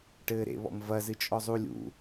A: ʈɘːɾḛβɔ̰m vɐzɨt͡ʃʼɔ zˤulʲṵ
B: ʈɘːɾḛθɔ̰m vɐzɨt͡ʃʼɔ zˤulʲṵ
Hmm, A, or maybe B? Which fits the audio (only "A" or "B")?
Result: A